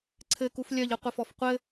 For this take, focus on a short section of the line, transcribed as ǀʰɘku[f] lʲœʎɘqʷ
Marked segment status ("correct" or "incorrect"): correct